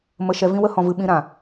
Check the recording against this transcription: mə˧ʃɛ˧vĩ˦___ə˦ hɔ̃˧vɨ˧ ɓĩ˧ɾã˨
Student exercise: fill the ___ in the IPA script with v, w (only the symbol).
w